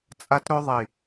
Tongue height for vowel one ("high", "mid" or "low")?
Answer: low